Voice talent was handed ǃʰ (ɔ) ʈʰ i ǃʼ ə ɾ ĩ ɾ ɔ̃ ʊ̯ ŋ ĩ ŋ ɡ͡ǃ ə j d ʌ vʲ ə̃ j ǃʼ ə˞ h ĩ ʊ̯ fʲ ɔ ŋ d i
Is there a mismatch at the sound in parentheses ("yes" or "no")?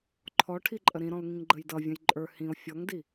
no